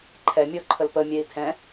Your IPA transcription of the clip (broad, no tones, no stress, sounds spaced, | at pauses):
ǃʰ ɛ mʲ ɔ ǃʰ ə l p ə mʲ ɛ i̯ tʰ ɛ̃